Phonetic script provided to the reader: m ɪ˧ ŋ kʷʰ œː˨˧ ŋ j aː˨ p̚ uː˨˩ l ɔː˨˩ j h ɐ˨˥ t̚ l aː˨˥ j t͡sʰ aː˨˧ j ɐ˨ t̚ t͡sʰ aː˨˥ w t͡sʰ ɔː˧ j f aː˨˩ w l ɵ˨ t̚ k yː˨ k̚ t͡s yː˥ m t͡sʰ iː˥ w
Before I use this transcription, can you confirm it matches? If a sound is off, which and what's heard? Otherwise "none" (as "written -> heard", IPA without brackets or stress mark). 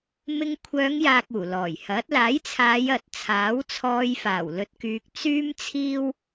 p̚ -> k̚